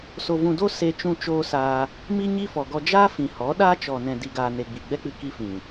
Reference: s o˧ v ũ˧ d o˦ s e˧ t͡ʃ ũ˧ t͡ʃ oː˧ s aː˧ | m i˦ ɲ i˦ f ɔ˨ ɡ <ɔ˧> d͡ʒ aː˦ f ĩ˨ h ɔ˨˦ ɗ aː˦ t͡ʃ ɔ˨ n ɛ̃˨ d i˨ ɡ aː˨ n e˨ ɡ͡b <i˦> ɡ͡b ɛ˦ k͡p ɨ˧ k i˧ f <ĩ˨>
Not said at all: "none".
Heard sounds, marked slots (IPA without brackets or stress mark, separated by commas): ɔ˧, i˨, ĩ˨